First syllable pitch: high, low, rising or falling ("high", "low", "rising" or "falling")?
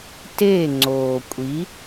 falling